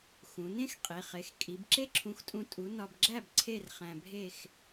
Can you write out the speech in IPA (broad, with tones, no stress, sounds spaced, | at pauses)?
x ũ˩˧ n ẽ˥ x qʼ i˩˧˩ χ e˨˥ x kʼ i˨˥ b ǁ e˥ ǁʰ ũ˨˥ x tʼ ũ˧ tʼ u˨˥ n ɒ˧ b ɡ͡ǁ æ˥˧ b ǀʰ e˥˧ r χ æ̃˧ bʱ e˥˧ x